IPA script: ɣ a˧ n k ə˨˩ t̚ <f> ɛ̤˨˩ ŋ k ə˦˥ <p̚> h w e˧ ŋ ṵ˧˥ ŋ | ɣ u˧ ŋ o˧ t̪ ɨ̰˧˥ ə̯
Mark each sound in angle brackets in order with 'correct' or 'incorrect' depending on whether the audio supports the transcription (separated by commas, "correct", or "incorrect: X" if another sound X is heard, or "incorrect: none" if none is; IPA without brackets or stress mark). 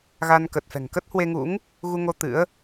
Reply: correct, incorrect: t̚